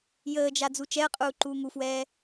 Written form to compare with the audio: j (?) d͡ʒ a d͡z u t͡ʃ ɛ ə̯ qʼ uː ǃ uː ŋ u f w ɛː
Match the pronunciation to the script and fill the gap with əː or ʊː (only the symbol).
əː